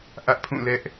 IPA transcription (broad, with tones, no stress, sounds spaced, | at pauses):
ʔ ä˦ ʔ pʰ ũ˦˨ l ɛ˦ ʔ